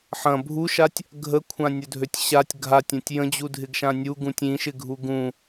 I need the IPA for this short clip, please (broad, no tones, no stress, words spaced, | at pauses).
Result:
ħɐ̃ bʱuʃatʲ | ɡʱəkʷʰãnʲʊdʱøtʲ ɕatʲ ɡʱatʲɐ̃tʲ jə̃d͡ʑudʱɪɡʃã nʲuɡũtʲ ĩʃɪɡʱu ɡũ